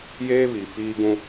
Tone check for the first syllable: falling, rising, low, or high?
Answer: high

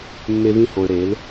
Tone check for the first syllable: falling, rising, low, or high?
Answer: high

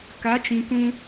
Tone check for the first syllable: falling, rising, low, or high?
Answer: rising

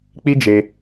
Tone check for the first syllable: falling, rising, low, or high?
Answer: high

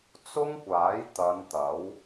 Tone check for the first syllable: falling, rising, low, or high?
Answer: high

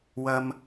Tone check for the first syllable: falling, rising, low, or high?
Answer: high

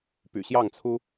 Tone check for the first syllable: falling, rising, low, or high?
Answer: low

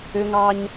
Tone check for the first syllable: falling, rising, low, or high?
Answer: high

